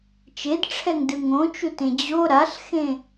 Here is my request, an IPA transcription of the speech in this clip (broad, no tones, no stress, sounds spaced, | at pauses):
t͡ʃ e d ʈ͡ʂʰ ɛ ŋ d ɯ ŋ õ t͡ʃ u t ẽ d͡ʑ o ɾ a ɬ x ẽ